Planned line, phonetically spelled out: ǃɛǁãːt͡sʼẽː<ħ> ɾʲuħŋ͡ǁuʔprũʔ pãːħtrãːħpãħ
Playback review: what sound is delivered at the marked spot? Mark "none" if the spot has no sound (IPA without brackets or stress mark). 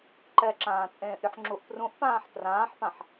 ʔ